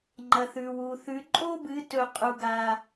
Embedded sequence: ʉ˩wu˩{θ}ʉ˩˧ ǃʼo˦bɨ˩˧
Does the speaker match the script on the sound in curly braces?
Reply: yes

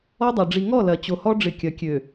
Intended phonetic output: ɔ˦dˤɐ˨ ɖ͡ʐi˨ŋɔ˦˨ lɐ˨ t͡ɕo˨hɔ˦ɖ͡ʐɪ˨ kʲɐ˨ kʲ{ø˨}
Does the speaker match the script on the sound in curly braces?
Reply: yes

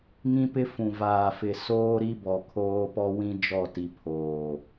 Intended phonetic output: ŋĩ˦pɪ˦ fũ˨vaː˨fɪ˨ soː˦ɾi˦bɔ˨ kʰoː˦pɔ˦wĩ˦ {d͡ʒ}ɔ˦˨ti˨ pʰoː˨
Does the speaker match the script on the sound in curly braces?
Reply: yes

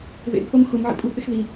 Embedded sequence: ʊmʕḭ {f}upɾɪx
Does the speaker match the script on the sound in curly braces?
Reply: no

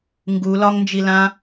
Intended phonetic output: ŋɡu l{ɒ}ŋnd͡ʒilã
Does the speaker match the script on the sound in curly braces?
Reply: yes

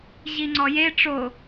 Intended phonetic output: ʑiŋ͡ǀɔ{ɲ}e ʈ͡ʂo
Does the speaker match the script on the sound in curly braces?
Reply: no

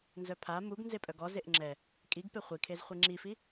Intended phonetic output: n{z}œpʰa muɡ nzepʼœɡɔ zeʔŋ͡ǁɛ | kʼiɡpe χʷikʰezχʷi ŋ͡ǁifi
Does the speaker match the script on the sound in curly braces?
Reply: yes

